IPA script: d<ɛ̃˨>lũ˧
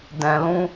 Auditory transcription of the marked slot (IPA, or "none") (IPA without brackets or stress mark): ɛ̃˨